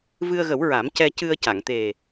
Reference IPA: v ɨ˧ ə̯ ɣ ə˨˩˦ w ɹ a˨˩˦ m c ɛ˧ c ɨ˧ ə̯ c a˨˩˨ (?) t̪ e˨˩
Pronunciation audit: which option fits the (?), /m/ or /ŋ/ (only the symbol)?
ŋ